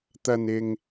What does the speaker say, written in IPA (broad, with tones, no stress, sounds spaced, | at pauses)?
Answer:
t̪ ɐ˧ n ɪ˧ ŋ